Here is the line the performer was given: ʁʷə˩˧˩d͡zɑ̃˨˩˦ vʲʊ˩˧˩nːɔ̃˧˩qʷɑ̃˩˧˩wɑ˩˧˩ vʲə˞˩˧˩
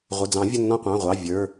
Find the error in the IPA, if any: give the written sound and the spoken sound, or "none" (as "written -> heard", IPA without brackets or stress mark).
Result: w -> ʁʷ